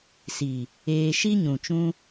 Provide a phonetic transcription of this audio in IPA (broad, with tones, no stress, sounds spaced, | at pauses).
s i˨ | eː˧ ʃ i˦ ɲ ũ˨ t͡ʃ ũ˦